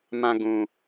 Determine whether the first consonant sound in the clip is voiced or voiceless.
voiced